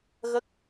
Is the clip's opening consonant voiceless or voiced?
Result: voiced